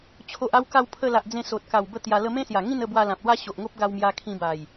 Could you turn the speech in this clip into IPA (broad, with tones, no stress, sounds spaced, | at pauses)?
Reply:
t͡ɕʰ o˨ ʔ a˧ w k a˧ w pʰ ə˧ l a˨ ʔ d͡z ẽ˧ s o˨ t̚ k a˨˩ w b ə˥˧ t̪ j a˧ l ə˦ m ẽ˦ s j a˨˩ ŋ ĩ˥˧ n ə˥˧ b w a˧ l ã˨ p̚ l w a˦ ɕ o˨ ʔ ŋ o˦ p̚ ɡ a˧ w m j a˧ kʰ ĩ˧ b a˨˩ j